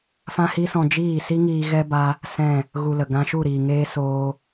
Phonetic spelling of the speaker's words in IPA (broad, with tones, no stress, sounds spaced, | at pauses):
f ã˦ h i˦ s ɔ̃˧ d͡ʒ iː˦˨ s i˦ ŋ iː˧ ɣ ɛ˦ b a˦ | s ɛ̃˦˨ | ɣ u˧ l ə˨ ɡ ã˧ ʃ u˦˨ ɾ iː˨ ŋ eː˦ s oː˧